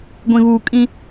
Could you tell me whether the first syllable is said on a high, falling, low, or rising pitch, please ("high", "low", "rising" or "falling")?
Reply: low